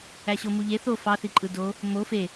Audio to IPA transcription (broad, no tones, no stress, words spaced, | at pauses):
æɕomuʎe θo fɑθiǃʼɯ do | mo fe